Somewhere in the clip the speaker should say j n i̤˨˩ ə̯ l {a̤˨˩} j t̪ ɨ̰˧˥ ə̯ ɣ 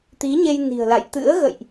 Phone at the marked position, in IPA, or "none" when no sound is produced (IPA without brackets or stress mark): a̰˧˨